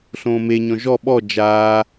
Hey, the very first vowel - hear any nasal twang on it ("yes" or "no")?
yes